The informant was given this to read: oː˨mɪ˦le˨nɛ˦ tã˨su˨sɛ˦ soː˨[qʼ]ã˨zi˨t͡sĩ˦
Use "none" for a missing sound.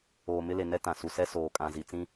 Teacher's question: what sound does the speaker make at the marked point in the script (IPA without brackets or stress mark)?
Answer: kʼ